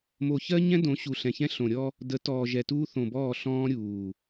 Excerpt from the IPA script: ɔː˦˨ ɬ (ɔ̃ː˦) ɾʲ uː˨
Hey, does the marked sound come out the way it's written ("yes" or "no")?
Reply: yes